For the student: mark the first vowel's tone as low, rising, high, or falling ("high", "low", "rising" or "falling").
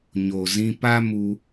low